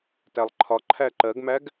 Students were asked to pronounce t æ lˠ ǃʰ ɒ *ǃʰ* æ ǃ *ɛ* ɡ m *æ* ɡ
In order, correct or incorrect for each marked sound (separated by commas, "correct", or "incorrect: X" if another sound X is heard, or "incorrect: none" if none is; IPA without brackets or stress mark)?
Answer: correct, incorrect: ɜ, correct